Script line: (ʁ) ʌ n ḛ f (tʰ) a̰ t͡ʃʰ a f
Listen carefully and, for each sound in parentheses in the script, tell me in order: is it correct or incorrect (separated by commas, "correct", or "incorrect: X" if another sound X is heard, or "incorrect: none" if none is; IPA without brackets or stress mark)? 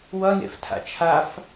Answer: incorrect: w, correct